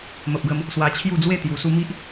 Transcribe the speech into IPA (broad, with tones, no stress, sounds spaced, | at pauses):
m ə˨ p̚ ɡ ə˧ m | s w a˧ t͡ɕʰ j u˥˧ d͡z w e˥˧ t̪ j u˨˩ s u˧ m i˦ ʔ